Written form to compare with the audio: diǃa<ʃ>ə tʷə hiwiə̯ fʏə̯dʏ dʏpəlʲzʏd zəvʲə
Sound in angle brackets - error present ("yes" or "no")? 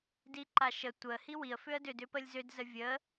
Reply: no